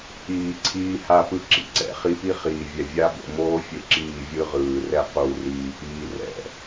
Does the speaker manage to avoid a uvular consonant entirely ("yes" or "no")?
no